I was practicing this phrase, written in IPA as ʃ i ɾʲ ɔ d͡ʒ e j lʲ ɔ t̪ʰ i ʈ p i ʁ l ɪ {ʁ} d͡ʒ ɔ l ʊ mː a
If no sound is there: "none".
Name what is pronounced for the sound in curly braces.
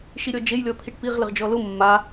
ʁ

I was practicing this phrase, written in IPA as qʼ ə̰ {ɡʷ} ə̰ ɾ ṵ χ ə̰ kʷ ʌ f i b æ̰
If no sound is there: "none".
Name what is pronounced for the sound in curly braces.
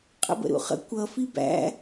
b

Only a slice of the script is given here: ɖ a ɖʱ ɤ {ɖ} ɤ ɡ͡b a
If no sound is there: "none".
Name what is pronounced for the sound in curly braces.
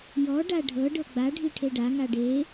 ɖ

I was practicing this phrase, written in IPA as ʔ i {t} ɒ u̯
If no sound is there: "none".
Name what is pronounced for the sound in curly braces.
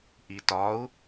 t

